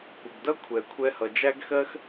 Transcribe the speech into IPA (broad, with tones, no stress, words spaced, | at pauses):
kʷə˨ɡdʌ˦kʷʰɛ˨ kʷʰɛ˧hʌ˨ d͡ʒæ˦ɡxɜ˦x